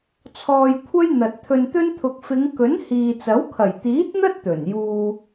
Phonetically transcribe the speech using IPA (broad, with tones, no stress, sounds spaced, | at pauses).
t͡sʰ ɔː˧ j kʷʰ ɐ˥ j n̪ ɐ˨ t̚ t̪ʰ ɵ˧ n t̪ ɵ˥ n t̪ʰ ʊ˨ k̚ f ɪ˨˧ ŋ k ɵ˨˥ n h iː˨ t͡s ɐ˨˥ w kʰ ɐ˨˩ j t̪ iː˨˥ t̚ n̪ ɐ˥ t̚ t̪ ɵ˨˩ n j uː˧